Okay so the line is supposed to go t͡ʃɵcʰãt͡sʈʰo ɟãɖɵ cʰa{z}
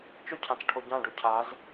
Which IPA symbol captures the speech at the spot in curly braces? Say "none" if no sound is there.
z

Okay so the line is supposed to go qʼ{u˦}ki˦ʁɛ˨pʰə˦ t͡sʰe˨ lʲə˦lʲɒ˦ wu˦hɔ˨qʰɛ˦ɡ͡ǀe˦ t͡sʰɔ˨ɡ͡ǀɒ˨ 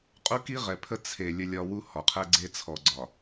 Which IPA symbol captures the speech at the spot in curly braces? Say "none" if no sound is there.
u˦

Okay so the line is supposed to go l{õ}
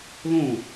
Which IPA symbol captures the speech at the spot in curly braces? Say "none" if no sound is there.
õ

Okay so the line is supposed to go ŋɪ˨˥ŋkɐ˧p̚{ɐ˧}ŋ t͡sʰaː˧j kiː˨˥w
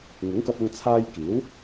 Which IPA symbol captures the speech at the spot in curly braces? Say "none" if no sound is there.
ɐ˧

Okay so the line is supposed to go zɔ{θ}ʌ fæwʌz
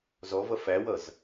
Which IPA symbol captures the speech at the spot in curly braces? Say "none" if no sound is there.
v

